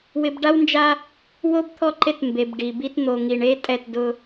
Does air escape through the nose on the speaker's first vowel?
no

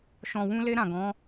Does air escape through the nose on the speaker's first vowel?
yes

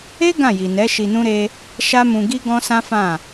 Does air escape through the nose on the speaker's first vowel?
no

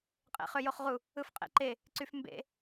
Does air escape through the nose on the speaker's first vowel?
no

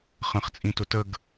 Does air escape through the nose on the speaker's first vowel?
yes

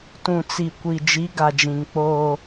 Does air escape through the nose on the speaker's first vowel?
yes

